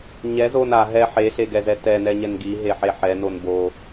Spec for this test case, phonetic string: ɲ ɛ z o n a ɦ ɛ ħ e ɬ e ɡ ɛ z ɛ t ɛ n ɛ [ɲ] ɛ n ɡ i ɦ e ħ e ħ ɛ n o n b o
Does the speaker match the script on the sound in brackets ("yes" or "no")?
yes